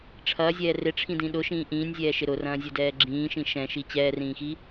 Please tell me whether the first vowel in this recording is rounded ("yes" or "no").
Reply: no